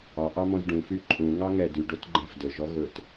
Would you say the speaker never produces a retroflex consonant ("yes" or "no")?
no